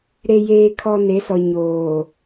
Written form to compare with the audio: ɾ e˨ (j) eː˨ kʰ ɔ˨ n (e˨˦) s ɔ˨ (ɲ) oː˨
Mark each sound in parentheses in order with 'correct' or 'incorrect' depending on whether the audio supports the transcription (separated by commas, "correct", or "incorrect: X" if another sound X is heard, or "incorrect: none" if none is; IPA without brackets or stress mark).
correct, correct, correct